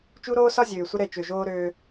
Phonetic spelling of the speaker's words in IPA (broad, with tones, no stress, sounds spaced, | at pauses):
t͡ʃ u˦ ɾ oː˦ s ɒ˦ zʲ øː˨ sʷ ə˦ ɾ ɛ˦˨ t͡ʃ ø˨ ʒ oː˦ ɾ øː˦